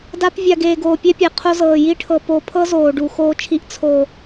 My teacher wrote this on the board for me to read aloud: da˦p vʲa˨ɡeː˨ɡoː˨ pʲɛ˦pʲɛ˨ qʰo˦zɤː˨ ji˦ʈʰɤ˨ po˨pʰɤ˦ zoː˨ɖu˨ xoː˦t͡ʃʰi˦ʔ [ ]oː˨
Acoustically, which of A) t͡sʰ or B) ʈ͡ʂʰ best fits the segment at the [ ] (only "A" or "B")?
A